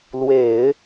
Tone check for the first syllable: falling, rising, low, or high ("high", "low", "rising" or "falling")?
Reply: low